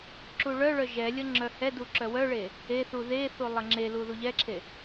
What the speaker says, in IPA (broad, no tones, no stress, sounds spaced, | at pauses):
ǁ u ɭ œ ɭ œ ʒ ɛ lʲ ə ŋ͡ǁ œ h ɛ d u ǁ œ w œ ɭ e | e θ u ð e θ u lˠ ə ŋ͡ǁ e l u ð u ʎ ɛ ǁʰ e